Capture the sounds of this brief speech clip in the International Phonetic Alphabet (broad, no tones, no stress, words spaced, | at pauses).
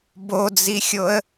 bod͡zixʲoə̯